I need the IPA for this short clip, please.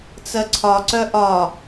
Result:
t͡s ɜ ǀʰ ɒ ǀ œ ʔ ɒ

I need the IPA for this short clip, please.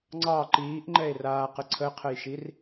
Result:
ŋ͡ǀ ɑ ǃ iː ʔ ŋ͡ǃ ɛ e̯ r aː q ə ǀʰ ə qʰ ə j ʃ i r

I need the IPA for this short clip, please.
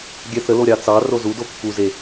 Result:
ɡʲ ɛ θ ə l o ɾʲ ɑ t͡s ɑ r o z u d o kː u z e

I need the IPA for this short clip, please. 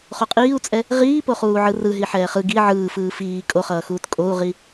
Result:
χ o qʼ iː u̯ t͡sʼ ɛ | ʁ iː p o χ uː ʕ ɯ r ɯ ɦ i ħ ɛː χ ɯ ɡ i ʕ ɯː f ɯː f iː kʼ o χ ʌː x uː t kʼ o u̯ ʁ i

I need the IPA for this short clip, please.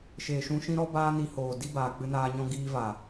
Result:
ʃ e˨ ʃ ũ˧ ʃ ĩ˦ ɾ ɔ˦ b aː˦ n i˧ h oː˨ d i˦ b aː˨ k͡p ɨ˧ n aː˧ ɲ ɔ̃˦ ɡ iː˦ v a˨

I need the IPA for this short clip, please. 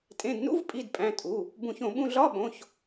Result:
tʼ ẽ˩˧˩ d n ṵ˧˥˧ v pʼ i˩˧˩ d pʼ æ̃˩˧˩ tʼ u˩˧˩ | b ũ˧˩˧ ç õ˧˩˧ ɓ ũ˧˥˧ ɮ ɒ˧˥˧ ɓ õ˩˧˩ ç

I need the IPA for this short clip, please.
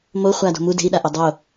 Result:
m o χʷ a d o̤ m u d e̤ i̯ ɗ a ʔ o dˤ o

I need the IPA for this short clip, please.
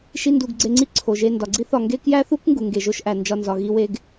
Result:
ʃ i˥ n d u˧ ɡ ɡ͡ǀ e˧ ŋ͡ǀ i˥ ǀʰ o˩ ʒ e˧ n d ɒ˩ ɡ͡ǀ i˥ θ ɒ˧ ŋ ɡ e˥ k j æ˥ θ u˥ k ŋ ɡ u˩ ŋ ɡ e˩ ʒ o˧ ʃ ʔ æ˩ n d͡ʒ ɒ˧ n z ɒ˩ ɣ i˧ w e˧ ɡ

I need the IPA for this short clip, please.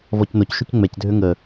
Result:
v ɔ c n o c ʃ ø c ŋ͡m ɛ c dʱ ø ŋ ə

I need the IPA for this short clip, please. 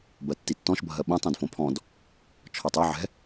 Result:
b ɜ tː i tː ɔ̃ ʃ bʱ ɜ ɓ õ tˤ ɛ̃ d f õ pʰ ɔ̃ d | t͡ʃʰ ɔ tˤ ɛ ʕ ɛ̤

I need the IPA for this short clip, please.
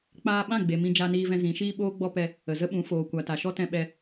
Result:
k͡p aː˧ ɓ ã˦˨ ɡ͡b e˨ m ĩ˧ d͡ʒ a˧ n iː˧ v ɛ̃˧ z ĩ˨˦ ʃ iː˦ ɓ oː˦ ɡ͡b ɔ˦ p ɛ˧ | ə˨ z ə˦ ɓ ũ˨˦ f oː˨ kʷ a˨ t a˨ ʃ ɔ˦ t ɛ̃˧ ɓ ɛ˧

